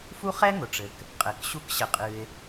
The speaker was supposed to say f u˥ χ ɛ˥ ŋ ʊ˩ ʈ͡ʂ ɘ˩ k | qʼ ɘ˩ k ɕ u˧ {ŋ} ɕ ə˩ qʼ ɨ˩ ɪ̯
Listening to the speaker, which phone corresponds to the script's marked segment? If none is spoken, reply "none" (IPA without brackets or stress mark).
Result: k